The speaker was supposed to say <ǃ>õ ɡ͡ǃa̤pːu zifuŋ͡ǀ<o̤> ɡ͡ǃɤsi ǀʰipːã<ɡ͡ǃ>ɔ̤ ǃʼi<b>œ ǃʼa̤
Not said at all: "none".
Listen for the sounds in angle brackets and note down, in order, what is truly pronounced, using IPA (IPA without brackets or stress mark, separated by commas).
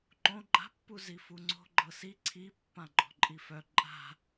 ǃ, o̤, ɡ͡ǃ, f